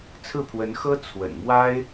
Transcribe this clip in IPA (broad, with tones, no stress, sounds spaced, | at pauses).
t͡sʰ ɹ̩˥˩ pʰ w ə˧˥ n x ɤ˥ t͡sʰ w ə̰˨˩ n m w a˥ ɪ̯